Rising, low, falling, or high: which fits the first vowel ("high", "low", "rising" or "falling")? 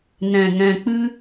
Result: low